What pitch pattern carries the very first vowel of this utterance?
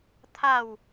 falling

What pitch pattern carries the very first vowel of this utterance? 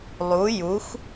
rising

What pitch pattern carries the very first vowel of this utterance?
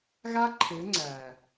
high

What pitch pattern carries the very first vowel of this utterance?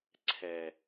low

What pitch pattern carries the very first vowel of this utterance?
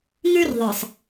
high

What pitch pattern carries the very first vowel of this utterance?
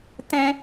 high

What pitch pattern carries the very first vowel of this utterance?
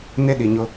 high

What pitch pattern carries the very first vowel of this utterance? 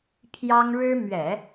high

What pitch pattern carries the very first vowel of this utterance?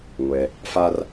low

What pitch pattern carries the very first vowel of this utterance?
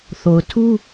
low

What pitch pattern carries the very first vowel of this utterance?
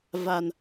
low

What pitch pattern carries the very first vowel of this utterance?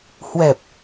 low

